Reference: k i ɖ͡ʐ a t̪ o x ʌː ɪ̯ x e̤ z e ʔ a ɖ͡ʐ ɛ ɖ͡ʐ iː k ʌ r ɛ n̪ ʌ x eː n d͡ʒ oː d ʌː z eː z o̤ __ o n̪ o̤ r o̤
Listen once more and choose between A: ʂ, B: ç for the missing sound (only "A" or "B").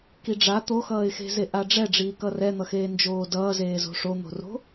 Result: A